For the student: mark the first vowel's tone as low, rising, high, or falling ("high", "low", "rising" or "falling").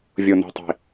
low